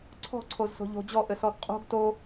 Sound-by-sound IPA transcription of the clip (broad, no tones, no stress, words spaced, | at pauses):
ǀʰɔ̤ǀʰozso̤ ʎo̤ d͡ʑɔʔɘsɔɡ qʼo̤ɡ to